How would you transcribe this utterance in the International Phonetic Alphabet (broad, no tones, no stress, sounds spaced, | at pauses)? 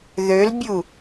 ð ø l bʲ u